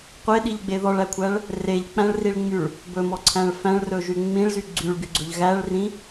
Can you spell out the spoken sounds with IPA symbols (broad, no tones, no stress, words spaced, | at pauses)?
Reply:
qʷeɗiʎɡ͡be ðɔɭækʷʰæɭ | reʎk͡pæ̃ɭriɭŋ͡myɭ | bɵmɔǀʰæ̃ɭ fæ̃ɭrɵʒy ŋ͡mĩɭzy ɡ͡ǀyɭɡyɡ͡ǀɵʎ ɣæɭrĩ